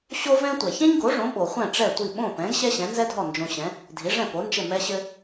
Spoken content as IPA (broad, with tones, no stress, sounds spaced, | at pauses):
ɕ o˥ v ɛ̃˥ tʷ ɛ˩ ç ɛ̃˥ ɲ ɡ o˩˥ ʐ õ˩˥ ɓ o˩ χʷ ɛ̃˥˩ ʈ͡ʂ ɛ˥˩ tʷ i˥˩ ɓ õ˥˩ p ɛ̃˩˥ ɡ ɕ ɛ˥ ɕ ɛ̃˩˥ n z ɛ˥ dʱ ɔ˥˩ n d͡ʒ õ˧ ɕ ɛ̃˩˥ | dʱ i˩˥ ʐ ɛ̃˥˩ p o˩˥ n d͡ʒ ɘ˥˩ m ɛ˥ ɕ ɘ˥